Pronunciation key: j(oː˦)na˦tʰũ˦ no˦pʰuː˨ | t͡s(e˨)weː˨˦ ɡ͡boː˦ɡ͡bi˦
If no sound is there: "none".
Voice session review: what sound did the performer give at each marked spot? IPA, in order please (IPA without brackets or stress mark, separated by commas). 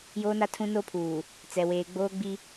oː˦, ɛ˨